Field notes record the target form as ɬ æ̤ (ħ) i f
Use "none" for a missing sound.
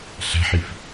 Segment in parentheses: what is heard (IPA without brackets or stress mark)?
ħ